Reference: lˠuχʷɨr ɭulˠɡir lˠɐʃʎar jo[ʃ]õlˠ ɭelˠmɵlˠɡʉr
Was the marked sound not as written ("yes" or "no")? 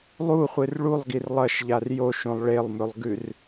no